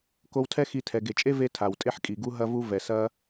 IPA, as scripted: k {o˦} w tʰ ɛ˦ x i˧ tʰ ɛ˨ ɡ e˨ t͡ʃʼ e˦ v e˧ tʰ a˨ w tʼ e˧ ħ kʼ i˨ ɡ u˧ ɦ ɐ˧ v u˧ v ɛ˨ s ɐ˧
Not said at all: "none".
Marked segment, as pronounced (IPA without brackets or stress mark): o˧